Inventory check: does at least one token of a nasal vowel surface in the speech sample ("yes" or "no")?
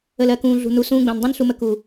yes